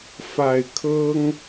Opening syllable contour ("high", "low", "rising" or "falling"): low